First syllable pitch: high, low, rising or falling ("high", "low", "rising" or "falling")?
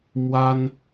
high